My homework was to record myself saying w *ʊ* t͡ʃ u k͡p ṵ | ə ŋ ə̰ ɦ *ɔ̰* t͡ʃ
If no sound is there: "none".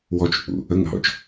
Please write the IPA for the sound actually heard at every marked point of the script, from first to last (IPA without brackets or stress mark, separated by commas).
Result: ɔ, ɔ̰